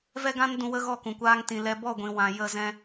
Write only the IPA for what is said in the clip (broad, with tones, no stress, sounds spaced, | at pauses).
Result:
v ɛ˦ ɡ ã˦ n d ũ˧ w ə˦ ɣ ɔ˦˨ k ũ˨ kʷ aː˧ ŋ t ĩ˨ l ɛ˧ b ɔ˦˨ ɡʷ ĩ˨ w ã˨ j ə˧ z ɛ̃˦